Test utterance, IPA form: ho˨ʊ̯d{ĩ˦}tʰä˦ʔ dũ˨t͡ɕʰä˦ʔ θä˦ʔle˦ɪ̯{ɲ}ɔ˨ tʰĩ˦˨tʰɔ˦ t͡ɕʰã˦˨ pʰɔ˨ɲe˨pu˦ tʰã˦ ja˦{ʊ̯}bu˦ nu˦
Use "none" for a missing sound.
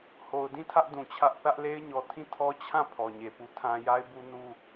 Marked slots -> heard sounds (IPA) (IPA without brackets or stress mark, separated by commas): ĩ˦˨, ɲ, ɪ̯